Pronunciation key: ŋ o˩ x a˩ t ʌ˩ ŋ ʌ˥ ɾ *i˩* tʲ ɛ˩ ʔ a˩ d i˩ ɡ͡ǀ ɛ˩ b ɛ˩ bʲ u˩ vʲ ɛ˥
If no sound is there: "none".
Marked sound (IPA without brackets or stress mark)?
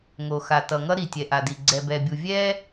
i˩